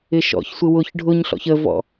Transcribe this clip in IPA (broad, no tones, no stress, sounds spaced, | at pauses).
ɪ ʃ ɔ̰ ç sʷ ɪ w ʊ ç ɖʱ ʊ ɲ ɬ ɔ̰ ç ə v ɔ̰